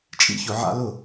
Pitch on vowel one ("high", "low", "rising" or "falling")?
high